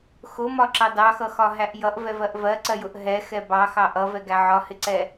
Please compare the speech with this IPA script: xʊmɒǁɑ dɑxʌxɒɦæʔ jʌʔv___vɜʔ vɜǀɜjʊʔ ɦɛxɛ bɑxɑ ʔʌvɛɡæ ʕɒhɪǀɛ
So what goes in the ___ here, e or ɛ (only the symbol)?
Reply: ɛ